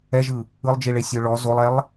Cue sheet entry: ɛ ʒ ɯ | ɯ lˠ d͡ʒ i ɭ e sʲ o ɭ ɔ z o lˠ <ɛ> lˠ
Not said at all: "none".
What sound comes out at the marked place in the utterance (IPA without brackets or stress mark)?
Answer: ɛ